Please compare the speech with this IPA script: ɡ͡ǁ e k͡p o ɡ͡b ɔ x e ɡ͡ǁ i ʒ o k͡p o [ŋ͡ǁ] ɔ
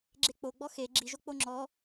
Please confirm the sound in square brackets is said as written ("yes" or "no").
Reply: yes